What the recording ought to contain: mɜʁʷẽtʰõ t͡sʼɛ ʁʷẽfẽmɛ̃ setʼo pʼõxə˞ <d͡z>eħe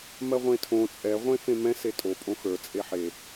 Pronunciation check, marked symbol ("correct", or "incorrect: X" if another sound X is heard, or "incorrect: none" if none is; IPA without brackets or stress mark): incorrect: t͡sʼ